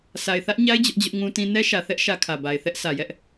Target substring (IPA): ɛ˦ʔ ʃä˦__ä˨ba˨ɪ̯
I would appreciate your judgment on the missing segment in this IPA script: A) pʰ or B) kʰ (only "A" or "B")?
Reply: B